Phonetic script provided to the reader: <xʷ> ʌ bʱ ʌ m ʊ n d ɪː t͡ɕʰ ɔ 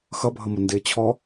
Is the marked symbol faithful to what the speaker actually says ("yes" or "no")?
no